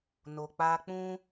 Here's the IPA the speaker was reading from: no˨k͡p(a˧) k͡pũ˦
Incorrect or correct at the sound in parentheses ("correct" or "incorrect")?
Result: correct